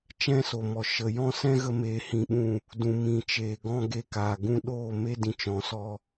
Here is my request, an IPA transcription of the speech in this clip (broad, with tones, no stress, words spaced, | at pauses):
t͡ʃɛ̃˦so˨mɔ˨ ʃə˨ jɔ̃˦sɛ̃˦ɣə˧ meː˧hĩ˧ɓũ˦˨ | dũ˨mĩ˨t͡ʃeː˨ɡɔ̃˦ ɡe˧kaː˨ ɡũ˧ɗoː˦˨me˦ dĩ˨t͡ʃɔ̃˨sɔ˧